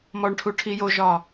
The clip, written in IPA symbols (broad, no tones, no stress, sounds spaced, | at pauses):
m ɔ ɳ ʈʰ u ʈʰ i j o ʒ ɒ